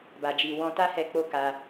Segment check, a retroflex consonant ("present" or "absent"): absent